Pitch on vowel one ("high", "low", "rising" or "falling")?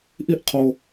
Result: high